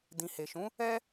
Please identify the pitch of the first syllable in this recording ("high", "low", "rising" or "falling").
low